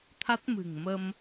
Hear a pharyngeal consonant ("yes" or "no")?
no